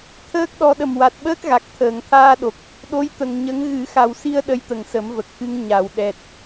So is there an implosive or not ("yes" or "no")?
yes